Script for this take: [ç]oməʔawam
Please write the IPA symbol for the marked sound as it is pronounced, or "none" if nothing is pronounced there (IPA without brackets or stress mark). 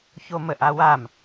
ç